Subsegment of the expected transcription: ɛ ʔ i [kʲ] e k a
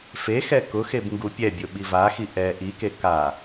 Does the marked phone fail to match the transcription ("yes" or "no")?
yes